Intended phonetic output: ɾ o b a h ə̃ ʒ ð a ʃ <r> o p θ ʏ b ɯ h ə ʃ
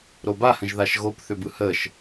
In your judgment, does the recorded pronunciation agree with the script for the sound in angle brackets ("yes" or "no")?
no